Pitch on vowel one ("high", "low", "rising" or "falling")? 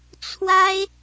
high